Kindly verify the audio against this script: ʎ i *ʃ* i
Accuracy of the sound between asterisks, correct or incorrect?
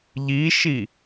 correct